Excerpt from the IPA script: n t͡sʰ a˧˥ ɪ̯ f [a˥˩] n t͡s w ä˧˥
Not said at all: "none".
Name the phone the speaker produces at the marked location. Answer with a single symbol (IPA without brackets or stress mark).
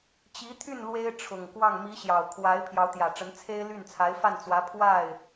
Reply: a˥˩